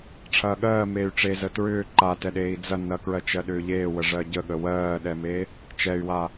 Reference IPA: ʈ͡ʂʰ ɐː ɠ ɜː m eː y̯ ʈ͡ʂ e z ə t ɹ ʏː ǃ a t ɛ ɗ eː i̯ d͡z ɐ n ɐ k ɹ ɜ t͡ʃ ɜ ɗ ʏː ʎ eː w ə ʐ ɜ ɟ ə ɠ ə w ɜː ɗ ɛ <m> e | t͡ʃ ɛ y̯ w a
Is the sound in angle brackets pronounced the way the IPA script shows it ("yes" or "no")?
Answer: yes